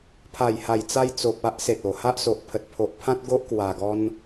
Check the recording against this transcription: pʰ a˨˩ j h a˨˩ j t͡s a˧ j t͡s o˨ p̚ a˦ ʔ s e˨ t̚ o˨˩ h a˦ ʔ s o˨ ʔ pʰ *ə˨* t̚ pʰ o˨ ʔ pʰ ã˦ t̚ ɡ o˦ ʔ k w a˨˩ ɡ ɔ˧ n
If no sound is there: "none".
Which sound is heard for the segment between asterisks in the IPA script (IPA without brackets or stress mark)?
ə˨